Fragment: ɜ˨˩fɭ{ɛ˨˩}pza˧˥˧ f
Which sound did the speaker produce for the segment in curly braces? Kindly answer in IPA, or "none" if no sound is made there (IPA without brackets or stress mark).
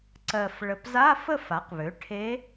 ə˨˩